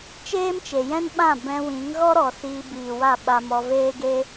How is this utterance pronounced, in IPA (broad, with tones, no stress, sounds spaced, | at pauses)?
t͡ʃ eː˦ m t͡ʃ e˨ j ɛ̃˦ n ɓ ã˦˨ b ɛ̃˧ w ĩ˨˦ ŋ ɣ ɔ˦ ɾ ɔ˨ s iː˧ b iː˨ w a˦˨ ɓ a˧ m ɔ˧ v eː˦ ɡ e˦